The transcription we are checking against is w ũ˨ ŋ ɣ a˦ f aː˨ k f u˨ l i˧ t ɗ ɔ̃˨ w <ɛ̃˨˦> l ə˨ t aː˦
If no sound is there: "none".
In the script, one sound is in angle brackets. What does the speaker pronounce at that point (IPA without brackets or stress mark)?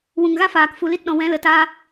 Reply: ɛ̃˨˦